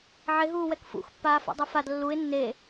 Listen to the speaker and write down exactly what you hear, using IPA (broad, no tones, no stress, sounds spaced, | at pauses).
ʕ ɪ ɦ uː w ɛ k f ṵ x pː aː f o̰ dˤ e f a d lː u ɪ̯ nː e